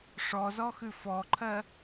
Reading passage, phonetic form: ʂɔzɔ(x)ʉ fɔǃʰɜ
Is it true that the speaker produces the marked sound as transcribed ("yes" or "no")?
yes